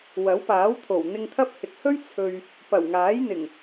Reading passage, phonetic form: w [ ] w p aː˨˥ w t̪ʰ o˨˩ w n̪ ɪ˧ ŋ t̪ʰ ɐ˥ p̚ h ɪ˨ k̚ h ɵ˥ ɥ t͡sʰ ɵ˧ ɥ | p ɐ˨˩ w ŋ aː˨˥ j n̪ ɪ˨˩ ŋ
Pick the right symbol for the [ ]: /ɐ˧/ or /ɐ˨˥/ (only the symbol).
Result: ɐ˨˥